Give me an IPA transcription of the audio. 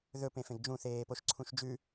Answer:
ðɵp ẽfẽɡd͡ʒũ θeːpoʃǀʰũʃd͡ʒʉ

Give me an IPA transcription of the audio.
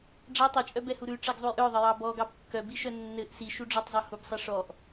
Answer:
ɖ͡ʐa tˤit͡ʃʼœbɛhu ɾʉʈ͡ʂɛɡzˤuj ʔœðˤɘjɑ bɔɡɑb kːœbiʃœ nːɘʔ siʃuɖ͡ʐɔtˤzˤœ hubsˤɛ ʂɔʔ

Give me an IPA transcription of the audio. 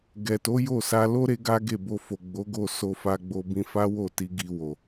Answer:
ɡɛ˨to˨˦jo˦˨ sa˧lo˦ ɾe˦ɡa˦ɡe˦˨ bo˧fo˨ɡ͡bo˨˦ ɡo˦˨so˧fa˧ɡ͡bo˧ bĩ˧fa˦wo˦˨ti˧ ɡi˧wo˨

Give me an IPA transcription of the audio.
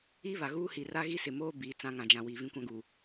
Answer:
i˦βa˨ ɣuː˦hi˨ra˦ ɣi˦sɪ˨moː˦ biː˨t͡sã˦ ŋã˨d͡ʒã˨ wi˨vĩ˦kʷã˦ɡu˨

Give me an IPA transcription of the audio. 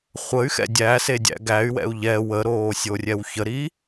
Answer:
χʷəy̯xɛ̰ dʲæsedʲæ̰ ɡæy̯wɛ̰u̯ ʎɛ wəɾoːsʲorʲɛw çəɾi

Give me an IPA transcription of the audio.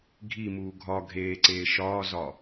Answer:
ɡʱimuː ɡʱɒ ɡʱeːǀeː ʃɒːzɒ

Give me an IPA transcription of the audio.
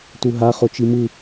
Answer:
tuɦa χot͡ʃimɯ

